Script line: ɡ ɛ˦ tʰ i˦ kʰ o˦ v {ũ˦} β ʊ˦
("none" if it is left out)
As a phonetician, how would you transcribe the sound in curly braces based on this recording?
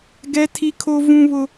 ũ˦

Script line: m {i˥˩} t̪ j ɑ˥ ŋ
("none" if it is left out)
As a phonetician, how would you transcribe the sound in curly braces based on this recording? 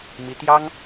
i˧˥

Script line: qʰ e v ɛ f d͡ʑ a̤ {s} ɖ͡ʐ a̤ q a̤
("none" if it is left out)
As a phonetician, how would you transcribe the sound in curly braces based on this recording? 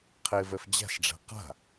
s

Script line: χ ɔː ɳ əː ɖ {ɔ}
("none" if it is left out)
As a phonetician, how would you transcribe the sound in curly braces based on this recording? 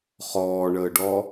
ɔ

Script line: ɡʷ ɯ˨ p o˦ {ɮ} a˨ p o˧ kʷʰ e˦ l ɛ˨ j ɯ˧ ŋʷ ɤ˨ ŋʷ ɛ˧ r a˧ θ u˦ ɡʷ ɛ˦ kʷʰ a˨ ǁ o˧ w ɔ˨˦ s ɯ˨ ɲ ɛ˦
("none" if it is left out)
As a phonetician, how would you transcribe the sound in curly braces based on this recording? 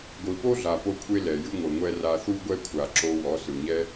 ɮ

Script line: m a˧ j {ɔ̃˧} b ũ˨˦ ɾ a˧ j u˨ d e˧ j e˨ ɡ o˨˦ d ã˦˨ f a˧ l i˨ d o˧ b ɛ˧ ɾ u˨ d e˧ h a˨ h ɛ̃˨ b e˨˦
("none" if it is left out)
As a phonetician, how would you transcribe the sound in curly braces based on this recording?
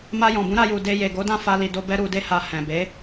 ɔ̃˨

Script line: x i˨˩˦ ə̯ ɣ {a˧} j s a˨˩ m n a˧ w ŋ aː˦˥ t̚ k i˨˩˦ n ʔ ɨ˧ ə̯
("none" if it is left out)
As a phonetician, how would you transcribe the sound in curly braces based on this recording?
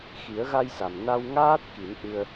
a˧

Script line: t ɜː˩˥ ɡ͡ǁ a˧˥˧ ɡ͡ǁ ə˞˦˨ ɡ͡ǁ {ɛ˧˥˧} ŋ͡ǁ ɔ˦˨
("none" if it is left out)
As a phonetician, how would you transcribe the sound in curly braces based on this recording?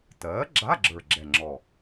ɛ˦˨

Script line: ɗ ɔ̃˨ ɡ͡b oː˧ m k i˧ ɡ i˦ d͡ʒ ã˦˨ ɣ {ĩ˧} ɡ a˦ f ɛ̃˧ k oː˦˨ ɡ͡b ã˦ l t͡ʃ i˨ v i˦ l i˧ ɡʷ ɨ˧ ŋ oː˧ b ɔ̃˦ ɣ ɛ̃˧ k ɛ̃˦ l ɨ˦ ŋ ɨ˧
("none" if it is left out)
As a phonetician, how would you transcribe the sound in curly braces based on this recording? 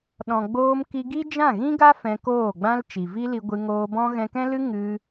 ĩ˦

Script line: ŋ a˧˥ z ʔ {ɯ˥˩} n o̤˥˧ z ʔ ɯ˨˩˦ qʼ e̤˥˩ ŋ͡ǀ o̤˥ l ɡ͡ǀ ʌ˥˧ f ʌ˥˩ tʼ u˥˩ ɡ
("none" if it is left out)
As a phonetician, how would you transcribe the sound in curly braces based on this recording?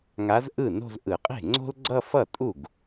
ɯ˥˩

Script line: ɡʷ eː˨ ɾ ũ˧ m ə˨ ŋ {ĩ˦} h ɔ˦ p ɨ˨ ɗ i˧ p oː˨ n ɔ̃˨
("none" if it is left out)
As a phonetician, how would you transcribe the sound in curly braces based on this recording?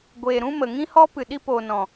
ĩ˦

